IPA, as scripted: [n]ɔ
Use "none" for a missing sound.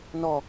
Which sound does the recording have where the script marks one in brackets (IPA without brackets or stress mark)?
n